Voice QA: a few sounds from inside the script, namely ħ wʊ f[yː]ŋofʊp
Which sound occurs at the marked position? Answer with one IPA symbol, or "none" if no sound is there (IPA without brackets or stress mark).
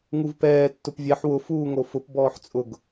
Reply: uː